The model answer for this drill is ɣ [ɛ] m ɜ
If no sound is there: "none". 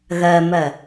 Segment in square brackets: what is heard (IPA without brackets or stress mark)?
ɜ